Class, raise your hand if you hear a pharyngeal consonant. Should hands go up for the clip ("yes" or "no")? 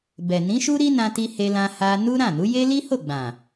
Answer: no